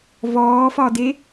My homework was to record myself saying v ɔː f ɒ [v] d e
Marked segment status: incorrect: none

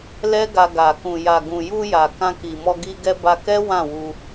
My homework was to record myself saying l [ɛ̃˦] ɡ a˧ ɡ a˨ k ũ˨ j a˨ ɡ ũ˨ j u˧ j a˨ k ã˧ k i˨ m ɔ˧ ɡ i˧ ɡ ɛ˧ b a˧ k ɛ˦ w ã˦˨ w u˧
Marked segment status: incorrect: ɛ˦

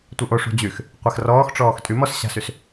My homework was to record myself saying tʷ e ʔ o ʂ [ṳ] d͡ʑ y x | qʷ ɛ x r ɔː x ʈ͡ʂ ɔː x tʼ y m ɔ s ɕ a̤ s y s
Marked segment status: correct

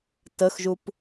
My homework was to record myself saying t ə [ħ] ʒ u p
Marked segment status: incorrect: x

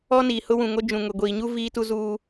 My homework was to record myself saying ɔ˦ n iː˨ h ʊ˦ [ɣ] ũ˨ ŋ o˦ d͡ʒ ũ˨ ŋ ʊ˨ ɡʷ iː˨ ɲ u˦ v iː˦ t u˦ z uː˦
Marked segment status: incorrect: w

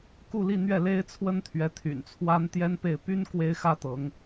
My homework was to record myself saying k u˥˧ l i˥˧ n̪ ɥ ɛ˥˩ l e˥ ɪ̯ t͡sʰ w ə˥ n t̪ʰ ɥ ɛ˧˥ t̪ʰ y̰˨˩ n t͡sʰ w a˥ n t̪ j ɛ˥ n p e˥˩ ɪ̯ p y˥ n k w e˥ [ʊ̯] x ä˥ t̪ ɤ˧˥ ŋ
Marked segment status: incorrect: ɪ̯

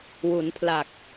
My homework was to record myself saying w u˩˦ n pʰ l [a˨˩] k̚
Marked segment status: correct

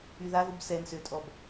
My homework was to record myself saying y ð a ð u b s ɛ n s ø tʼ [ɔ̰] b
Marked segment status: incorrect: ɔ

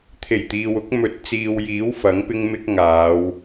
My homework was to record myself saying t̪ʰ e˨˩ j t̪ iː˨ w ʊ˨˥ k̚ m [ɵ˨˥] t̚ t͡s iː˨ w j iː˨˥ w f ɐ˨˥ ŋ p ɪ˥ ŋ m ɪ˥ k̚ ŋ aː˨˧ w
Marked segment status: correct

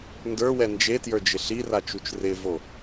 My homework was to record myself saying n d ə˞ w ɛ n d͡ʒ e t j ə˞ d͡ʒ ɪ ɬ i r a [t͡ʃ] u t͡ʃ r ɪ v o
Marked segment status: correct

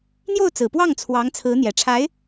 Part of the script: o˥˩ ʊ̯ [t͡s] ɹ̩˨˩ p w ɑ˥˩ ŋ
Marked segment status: correct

